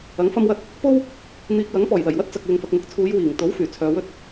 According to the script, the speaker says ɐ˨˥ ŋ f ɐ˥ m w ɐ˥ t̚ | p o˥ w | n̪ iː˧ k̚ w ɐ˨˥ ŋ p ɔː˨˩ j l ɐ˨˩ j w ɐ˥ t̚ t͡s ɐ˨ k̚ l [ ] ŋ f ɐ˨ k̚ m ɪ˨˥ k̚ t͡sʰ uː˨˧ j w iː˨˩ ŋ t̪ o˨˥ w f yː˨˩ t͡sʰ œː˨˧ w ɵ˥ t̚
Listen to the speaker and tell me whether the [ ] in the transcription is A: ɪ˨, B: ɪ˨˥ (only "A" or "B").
A